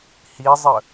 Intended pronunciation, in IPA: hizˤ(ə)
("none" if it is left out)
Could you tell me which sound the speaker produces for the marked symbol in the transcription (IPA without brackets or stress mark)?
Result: ə